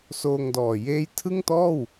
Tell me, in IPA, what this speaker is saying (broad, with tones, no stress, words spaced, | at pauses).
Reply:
soː˧ŋdɔː˨˩ jeː˥˩j tʰɯ˥˩ŋtɔː˥˩w